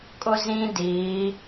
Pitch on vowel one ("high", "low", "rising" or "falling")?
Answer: high